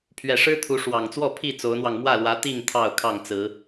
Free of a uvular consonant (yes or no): yes